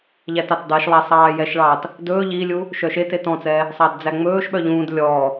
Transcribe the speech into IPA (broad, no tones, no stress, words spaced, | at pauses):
ʎætɑtdˤiʃlˠɛ sˤɑːjɛʃɭɑt | dɵː ʎilʲu | ʃœʃetet ɔ̃t͡sɛ | sˤɑdd͡zæŋ͡mɵːʃɓœ ʎũːd lʲɔ